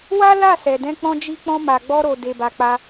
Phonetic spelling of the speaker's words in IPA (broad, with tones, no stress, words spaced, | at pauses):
wa˦ la˦˨sɛ˨dɛ̃˧k͡pɔ̃˧ d͡ʒi˧k͡pɔ̃˧ma˨ɡ͡bɔ˧ ɾo˨ de˨ba˨k͡pa˧